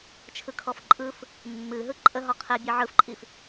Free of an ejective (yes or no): no